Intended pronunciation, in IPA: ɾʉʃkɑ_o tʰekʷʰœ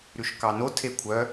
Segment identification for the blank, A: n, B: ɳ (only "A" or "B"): A